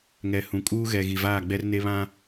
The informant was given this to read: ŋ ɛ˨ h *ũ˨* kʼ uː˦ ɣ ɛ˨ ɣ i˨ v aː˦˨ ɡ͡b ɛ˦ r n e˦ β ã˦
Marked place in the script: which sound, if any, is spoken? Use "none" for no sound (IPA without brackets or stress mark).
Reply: ũ˨